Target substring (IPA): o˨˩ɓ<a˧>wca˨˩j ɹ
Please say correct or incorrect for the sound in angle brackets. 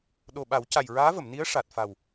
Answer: incorrect